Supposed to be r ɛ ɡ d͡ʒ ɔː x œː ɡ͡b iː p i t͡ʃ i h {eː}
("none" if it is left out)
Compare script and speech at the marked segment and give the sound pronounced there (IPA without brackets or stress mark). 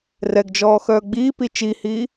iː